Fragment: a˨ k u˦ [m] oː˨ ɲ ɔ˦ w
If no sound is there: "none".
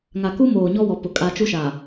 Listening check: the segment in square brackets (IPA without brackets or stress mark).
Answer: m